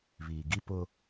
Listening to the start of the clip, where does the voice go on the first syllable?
low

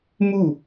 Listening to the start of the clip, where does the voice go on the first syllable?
falling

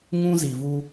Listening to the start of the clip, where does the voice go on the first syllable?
high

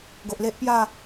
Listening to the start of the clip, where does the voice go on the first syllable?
low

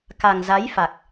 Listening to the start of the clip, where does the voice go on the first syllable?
low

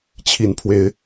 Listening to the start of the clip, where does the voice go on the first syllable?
rising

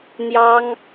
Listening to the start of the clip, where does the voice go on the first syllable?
high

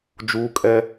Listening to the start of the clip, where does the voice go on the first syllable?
high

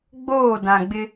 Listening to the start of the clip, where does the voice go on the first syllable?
falling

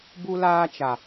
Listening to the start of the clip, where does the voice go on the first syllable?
high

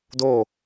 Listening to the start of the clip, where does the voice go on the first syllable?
falling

